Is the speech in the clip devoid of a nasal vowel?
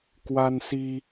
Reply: yes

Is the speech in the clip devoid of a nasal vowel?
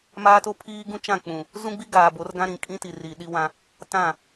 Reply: no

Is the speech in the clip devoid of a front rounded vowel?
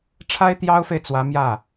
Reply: yes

